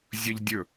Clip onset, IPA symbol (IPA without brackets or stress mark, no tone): zʲ